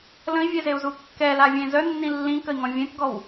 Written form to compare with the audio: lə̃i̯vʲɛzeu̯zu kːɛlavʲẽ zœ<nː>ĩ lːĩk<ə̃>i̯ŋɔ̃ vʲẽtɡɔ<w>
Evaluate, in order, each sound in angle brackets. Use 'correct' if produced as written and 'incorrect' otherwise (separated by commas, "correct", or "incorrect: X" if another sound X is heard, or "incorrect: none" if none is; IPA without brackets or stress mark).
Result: correct, incorrect: ə, correct